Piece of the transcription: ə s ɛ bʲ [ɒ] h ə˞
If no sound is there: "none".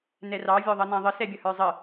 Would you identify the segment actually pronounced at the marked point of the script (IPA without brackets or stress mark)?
ʌ